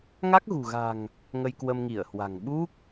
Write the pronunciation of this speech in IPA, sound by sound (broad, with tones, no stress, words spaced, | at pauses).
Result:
ŋa˦˥k̚ɣṳ˨˩ɣa̤˨˩ŋ | ŋə˧jkwə˧mŋi˧˩ə̯hwa̤˨˩ŋ ɓu˦˥k̚